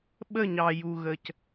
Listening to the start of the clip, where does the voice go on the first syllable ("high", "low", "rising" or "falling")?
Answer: falling